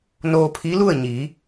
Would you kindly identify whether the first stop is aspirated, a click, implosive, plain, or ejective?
aspirated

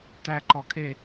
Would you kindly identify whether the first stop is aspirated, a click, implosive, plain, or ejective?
plain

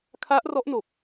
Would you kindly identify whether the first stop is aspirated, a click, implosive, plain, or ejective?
aspirated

